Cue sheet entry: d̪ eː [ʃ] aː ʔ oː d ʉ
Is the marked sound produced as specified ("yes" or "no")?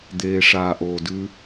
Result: no